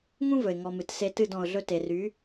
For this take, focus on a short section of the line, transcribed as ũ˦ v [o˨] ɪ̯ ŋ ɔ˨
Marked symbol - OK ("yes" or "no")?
no